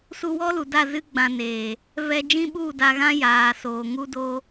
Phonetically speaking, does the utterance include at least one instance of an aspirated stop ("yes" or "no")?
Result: no